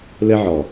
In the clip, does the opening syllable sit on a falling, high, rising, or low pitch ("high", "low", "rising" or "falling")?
high